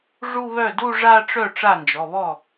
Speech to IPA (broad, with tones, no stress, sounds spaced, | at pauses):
ʐ u˥˧ β œ˥˩ d u˥˧ ʐ a˥˧ ʈ͡ʂ œ˥˩ ʈ͡ʂ a˥˩ n d͡ʒ ɔ˩˧˩ β ɔ˥˩